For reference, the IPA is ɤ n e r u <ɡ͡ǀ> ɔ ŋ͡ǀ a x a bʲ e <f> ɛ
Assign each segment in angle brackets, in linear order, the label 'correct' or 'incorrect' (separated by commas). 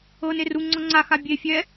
incorrect, incorrect